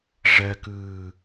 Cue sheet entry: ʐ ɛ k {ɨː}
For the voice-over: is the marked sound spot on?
yes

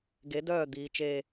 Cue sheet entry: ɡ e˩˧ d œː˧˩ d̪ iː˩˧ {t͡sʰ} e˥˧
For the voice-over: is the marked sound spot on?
no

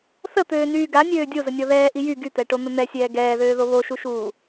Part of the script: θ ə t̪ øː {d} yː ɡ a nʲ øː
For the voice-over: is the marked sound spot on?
no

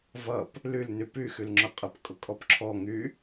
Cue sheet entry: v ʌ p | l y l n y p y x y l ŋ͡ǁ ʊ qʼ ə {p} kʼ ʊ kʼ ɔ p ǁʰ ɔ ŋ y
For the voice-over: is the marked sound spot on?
yes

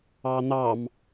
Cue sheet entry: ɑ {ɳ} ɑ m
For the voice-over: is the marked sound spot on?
no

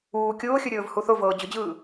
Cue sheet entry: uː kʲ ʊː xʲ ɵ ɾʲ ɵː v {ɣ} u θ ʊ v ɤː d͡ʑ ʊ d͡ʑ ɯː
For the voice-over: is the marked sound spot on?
no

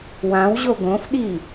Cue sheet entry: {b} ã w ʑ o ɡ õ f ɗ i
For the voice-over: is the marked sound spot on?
no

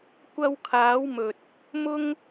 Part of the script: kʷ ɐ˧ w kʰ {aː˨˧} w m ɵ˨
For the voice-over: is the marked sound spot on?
yes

